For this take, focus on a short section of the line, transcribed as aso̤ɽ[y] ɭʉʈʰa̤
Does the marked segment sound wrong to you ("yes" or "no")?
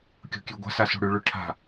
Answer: no